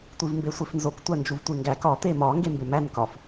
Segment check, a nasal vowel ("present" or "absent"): absent